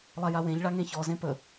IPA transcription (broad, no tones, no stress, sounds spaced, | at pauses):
lˠ a j a w ẽ ʎ ɭ a ŋ ẽ ç ɔ z ẽ p ə